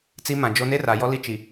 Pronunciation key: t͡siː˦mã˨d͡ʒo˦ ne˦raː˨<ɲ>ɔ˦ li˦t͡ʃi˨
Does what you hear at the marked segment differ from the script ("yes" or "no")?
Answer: yes